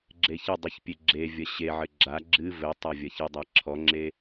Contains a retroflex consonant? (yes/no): no